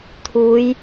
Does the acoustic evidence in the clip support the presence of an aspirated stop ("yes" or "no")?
yes